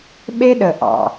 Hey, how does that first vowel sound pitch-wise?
high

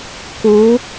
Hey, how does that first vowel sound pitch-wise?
rising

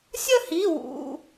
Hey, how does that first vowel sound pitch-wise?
falling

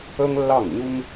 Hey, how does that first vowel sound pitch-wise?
high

